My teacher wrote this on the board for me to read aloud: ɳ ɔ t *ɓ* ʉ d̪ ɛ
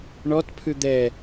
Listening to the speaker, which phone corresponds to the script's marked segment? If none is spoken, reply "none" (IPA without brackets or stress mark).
pʰ